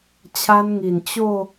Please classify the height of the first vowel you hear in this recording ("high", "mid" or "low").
low